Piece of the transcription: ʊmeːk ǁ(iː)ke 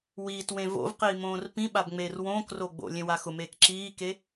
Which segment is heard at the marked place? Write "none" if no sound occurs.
iː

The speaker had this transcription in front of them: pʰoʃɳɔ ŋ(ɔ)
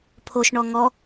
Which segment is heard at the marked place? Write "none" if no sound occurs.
ɔ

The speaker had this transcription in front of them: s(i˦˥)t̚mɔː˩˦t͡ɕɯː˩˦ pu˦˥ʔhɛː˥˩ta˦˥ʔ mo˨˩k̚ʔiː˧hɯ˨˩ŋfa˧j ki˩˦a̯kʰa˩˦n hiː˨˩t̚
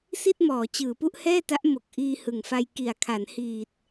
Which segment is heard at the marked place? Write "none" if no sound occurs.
i˥˩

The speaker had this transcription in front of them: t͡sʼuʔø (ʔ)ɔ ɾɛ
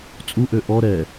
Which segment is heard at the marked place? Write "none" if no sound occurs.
ʔ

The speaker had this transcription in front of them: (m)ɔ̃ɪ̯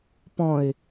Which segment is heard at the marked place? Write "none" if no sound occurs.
p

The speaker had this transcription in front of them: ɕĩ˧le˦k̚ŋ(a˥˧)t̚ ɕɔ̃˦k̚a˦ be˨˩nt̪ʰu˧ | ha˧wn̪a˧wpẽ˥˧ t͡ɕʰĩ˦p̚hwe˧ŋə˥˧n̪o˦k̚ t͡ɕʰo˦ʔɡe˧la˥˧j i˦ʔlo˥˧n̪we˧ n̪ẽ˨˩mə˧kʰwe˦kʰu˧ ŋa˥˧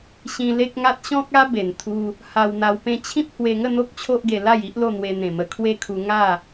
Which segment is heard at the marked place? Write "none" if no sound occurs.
a˦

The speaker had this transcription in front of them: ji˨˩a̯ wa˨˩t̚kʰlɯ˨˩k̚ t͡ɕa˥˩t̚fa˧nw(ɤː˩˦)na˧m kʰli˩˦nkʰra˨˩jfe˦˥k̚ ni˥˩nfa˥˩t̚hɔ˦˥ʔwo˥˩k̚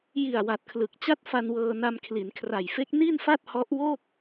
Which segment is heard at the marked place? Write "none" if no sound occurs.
ɤː˧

